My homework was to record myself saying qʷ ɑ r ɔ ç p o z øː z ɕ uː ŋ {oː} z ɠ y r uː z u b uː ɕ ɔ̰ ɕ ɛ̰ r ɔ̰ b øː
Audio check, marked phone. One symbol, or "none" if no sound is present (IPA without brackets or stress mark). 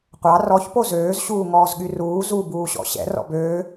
ɔː